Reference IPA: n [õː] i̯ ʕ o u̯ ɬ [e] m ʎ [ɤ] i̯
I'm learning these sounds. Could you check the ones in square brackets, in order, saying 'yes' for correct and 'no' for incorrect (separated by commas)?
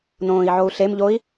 yes, yes, no